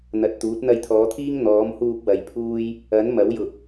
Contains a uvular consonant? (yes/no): no